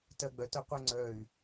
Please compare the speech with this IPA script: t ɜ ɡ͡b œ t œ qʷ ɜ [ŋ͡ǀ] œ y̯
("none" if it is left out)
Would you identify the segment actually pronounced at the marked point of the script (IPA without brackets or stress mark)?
ŋ͡ǀ